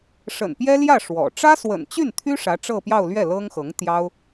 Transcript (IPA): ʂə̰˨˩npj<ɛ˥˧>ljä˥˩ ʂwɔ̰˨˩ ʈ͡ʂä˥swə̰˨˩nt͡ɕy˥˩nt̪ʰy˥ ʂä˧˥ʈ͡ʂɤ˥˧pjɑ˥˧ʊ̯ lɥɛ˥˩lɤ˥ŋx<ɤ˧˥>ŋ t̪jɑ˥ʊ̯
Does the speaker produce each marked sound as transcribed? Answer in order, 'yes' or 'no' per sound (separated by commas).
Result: no, yes